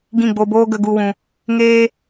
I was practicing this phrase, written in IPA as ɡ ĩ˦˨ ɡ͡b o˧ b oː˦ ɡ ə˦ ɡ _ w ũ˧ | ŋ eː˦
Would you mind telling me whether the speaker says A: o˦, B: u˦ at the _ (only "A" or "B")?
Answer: B